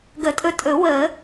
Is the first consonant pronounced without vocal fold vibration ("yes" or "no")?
no